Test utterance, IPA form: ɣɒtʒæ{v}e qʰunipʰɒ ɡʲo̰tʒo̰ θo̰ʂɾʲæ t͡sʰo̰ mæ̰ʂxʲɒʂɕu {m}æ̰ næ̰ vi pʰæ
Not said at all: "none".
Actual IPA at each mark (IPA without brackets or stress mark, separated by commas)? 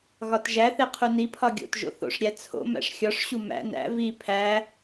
θ, m